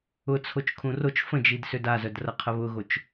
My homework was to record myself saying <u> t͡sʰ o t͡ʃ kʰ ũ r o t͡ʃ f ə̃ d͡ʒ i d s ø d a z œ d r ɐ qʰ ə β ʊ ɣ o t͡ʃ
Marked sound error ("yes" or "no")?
yes